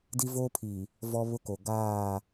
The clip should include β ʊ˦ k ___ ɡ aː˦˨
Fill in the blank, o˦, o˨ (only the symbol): o˨